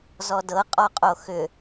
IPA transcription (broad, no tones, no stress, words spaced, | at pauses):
zɔdɤ qʼɔqʼoxʏ